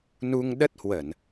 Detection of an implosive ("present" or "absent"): present